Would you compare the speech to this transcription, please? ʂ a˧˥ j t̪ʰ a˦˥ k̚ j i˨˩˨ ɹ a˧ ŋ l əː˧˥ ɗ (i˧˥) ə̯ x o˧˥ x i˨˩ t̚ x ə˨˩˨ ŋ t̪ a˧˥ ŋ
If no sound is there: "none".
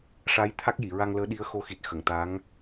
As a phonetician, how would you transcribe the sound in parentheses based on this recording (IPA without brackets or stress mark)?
i˧˥